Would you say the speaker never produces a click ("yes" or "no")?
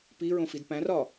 yes